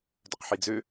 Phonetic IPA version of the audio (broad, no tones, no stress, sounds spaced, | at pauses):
d ɵ q ħ i d͡z ø